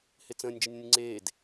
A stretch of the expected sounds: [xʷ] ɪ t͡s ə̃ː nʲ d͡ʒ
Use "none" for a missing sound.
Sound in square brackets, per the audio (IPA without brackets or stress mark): h